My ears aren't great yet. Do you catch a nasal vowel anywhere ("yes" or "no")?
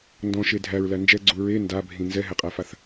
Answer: yes